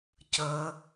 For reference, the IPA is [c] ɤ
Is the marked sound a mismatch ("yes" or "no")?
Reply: no